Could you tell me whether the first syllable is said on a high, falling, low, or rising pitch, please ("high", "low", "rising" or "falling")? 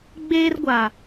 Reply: high